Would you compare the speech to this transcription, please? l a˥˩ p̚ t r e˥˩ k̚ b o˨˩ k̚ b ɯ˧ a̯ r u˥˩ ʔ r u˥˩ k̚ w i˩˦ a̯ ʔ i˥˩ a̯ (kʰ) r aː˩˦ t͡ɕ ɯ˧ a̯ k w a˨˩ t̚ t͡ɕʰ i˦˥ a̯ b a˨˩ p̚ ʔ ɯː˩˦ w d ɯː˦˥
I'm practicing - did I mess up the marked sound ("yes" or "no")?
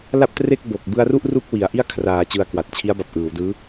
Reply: no